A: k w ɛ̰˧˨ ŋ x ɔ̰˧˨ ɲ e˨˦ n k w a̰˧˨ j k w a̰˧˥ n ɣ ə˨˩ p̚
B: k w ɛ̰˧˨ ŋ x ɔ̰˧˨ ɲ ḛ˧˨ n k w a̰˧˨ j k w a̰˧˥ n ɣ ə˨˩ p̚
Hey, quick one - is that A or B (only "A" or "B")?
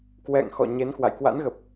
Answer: A